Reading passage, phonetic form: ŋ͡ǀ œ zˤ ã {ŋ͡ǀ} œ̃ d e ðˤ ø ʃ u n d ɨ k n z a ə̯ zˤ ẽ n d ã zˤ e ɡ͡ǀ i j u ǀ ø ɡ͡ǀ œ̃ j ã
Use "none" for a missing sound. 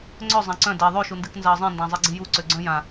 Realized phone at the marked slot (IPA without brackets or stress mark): ǀ